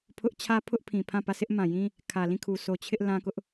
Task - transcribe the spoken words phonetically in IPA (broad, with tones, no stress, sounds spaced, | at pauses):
pʰ ʊ˦ ʔ t͡ɕʰ ä˦ pʰ ʊ˦ ʔ pʰ ĩ˨ pʰ ã˦˨ p ä˦˨ sʰ ɪ˦ ʔ m ã˨ j ĩ˦ | kʰ ä˨ l ĩ˦˨ kʰ u˨ sʰ o˨ t͡ɕʰ ɪ˦ ʔ l ã˦ k ʊ˦ ʔ